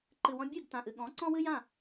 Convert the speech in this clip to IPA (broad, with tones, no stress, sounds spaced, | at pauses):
ǃ ɨ˩ w ɔ̃˧ bʲ ɨ˥˩ ɡ t ã˩ ʔ ɨ˩ ɠ ɔ̃˩˥ ǀ ɔ̃˥ w ɨ˥ j ã˥˩